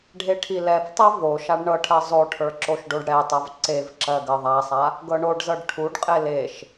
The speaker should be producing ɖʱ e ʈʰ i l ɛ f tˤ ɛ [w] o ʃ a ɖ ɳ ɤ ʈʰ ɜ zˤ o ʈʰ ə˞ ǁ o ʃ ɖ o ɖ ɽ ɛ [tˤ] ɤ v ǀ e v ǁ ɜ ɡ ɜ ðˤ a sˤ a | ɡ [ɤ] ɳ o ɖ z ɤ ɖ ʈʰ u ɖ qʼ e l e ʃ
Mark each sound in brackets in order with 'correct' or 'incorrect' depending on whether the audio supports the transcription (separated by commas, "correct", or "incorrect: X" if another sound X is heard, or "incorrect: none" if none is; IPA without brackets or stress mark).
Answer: incorrect: v, correct, correct